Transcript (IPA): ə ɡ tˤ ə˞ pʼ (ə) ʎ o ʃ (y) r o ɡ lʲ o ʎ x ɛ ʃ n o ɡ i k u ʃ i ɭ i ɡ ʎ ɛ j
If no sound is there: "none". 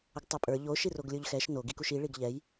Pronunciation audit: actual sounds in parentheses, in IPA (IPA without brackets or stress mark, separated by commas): ə˞, i